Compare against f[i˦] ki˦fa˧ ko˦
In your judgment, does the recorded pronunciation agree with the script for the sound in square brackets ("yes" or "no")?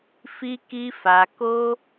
yes